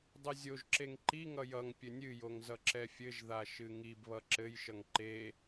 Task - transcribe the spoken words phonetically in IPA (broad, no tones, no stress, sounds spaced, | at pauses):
dˤ ɘ zʲ o ʒ ǁ e ŋ ǃ i ŋ ʌ j ʌ ŋ pʲ ɘ nʲ ɨ j o ŋ z ʌ ǁ ɛ fʲ ɘ ʒ ð a ʃ ɨ ŋ i b β ʌ ǁ ɘ j ʃ ʌ ŋ ǃ e